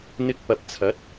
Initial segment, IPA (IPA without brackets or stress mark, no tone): n̪